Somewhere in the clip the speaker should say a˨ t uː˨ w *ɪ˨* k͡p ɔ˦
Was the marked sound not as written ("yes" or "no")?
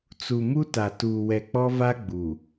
yes